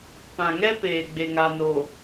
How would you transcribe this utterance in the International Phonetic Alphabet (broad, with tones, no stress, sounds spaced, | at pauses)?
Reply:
p ã˨ ŋ ɛ˦ p eː˨ ɡ͡b e˨ ŋ a˨ n o˨